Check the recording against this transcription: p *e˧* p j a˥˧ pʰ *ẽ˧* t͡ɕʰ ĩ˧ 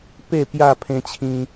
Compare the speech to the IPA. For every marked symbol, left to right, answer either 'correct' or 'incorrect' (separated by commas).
incorrect, correct